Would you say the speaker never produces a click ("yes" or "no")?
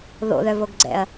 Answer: no